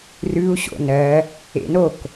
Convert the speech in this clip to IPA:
r ʉ u̯ ɕ o̰ n ɜ | ḛ n o k

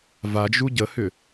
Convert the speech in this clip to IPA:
v a d͡ʒ u ɟ ə h ʏ

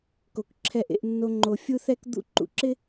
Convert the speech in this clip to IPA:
k o˨ k ǁʰ ɛ˧ ʔ ḛ˧ ʔ nː o˧ ŋ͡ǃ o˨ fʲ u˦ θ ɛ˦ k d̪ ṵ˦ ǃ ṵ˧ ǁ ɪ˦

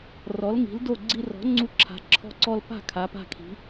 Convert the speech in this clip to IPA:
r ɔ˩˥ l ŋ i̤˩˥ l d o˥˩ ɡ͡ǀ i˧ r ɔ̤˩˥ ŋ͡ǀ u˧ ǁʰ a̤˩˧ ǁʰ ɔ̤˧ ǀ ɔ˧ l p a̤˥˩ kʰ a˩˥ p a̤˥˩ kʰ i̤˩˥

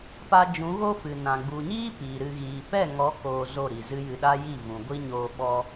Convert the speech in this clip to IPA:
p a˧ d͡ʒ ũ˨˦ ɣ o˦ f ɨ˨ n ã˨ ɡ͡b u˨ ɲ iː˦ p iː˨ ɾ ɨ˧ ɣ iː˨ p ɛ˦˨ ŋ ɔ˨˦ k oː˨ z o˦˨ ɾ i˨ z ɨ˦ j ɨ˧ ɗ a˦ j i˦˨ v ũ˨ ɡʷ i˦ ɲ oː˧ ɓ ɔ˧

